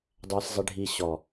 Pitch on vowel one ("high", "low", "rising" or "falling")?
low